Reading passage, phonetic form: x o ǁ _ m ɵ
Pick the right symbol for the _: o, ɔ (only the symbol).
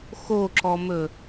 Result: ɔ